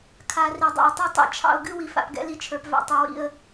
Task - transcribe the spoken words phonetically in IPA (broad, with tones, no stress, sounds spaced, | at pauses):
kʰ a˨ r i˨ dˤ ɛ̰˨ ɪ̯ tˤ y˦ tˤ ɛ̰˨ t͡ʃʰ ɑ̰˦ ʊ̯ ɡ ɨ˦ w i˨ f a̰˨ p ɡ ɛ̰˦ l i˦ t͡ʃʰ ə˞˨ p v a̰˨ tˤ ɛ˨ w ḭ˦˨ ə̯